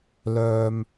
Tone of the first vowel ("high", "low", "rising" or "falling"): low